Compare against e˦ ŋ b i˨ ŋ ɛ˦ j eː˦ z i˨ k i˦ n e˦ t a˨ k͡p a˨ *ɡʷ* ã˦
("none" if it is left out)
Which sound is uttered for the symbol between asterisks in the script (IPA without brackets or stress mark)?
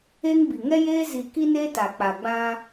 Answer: ɡ͡b